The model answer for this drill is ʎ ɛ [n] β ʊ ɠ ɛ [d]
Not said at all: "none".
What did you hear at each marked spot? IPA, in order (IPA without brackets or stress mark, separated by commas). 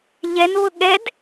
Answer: n, d